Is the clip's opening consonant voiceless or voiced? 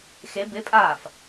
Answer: voiceless